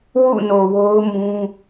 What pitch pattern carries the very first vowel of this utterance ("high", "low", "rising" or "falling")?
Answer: falling